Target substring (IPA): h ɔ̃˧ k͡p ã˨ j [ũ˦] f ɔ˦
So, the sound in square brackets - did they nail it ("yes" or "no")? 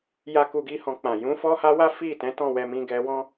no